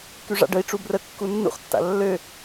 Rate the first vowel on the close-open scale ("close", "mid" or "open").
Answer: close